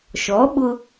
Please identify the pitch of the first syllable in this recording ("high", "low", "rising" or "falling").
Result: rising